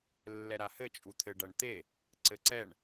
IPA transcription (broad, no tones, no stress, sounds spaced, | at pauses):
lː ɛ ɾ a h ɘ t͡ʃʼ u t̪ʰ ɘ ɖ ɐ ɳ t̪ e | ǀ ɘ ǀ ɛ ɳ